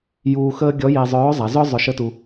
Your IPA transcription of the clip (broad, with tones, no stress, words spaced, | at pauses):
juː˧xəː˥ ɡʲɔ˧˥je˧ zˤœː˧˥ zˤa˩˧ zœ˥ zˤœ˧ʃə˥tu˧